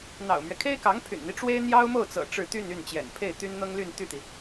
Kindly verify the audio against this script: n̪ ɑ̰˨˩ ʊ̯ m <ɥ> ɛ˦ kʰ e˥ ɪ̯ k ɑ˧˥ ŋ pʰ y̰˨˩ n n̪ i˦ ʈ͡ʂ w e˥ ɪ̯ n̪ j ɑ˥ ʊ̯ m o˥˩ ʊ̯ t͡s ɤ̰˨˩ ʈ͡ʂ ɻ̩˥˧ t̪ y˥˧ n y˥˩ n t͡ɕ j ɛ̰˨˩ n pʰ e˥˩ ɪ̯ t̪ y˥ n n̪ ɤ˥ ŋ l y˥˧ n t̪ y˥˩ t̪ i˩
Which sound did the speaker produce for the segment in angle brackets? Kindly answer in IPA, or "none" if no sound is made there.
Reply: ɥ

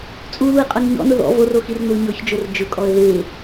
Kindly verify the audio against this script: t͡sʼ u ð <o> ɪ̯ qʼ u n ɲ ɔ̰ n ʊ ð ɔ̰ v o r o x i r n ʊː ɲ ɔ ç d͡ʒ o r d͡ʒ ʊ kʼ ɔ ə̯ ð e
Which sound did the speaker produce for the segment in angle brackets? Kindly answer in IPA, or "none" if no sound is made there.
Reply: u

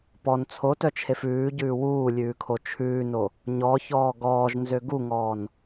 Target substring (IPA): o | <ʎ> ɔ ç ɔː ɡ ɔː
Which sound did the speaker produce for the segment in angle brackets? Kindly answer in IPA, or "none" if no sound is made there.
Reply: ɲ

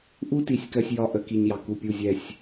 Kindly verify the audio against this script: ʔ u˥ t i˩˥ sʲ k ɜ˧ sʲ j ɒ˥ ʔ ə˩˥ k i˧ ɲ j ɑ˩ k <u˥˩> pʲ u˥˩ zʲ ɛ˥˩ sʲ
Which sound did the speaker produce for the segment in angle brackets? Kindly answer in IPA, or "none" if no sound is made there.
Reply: u˥˩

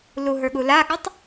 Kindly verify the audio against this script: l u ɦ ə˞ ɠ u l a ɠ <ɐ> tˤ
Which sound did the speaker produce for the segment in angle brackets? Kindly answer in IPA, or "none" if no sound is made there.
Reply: ə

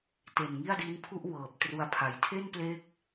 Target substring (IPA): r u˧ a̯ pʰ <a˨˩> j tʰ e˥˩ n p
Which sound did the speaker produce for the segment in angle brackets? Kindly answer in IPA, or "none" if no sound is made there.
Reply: a˨˩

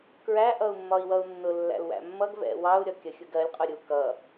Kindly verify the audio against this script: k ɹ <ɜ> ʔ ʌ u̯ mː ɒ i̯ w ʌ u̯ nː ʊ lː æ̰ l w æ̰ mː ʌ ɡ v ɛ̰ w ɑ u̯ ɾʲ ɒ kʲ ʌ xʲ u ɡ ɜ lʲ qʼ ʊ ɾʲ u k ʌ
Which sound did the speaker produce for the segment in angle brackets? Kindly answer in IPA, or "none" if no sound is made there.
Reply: æ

